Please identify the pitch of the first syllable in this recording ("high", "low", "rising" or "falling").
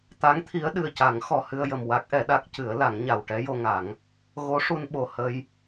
rising